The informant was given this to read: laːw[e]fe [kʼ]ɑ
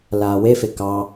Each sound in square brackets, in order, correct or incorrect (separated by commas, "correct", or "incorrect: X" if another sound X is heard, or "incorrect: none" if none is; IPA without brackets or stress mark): correct, incorrect: k